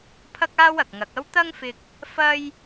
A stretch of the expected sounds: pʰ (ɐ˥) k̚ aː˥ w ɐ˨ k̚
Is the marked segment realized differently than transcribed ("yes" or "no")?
no